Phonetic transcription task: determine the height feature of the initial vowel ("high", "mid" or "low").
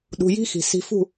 high